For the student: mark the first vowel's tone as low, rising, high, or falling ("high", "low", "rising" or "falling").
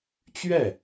falling